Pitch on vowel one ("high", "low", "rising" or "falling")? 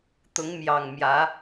rising